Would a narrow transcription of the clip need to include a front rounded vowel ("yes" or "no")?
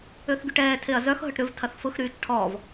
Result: yes